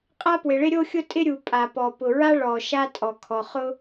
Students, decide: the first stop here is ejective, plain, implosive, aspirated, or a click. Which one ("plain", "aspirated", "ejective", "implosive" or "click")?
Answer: ejective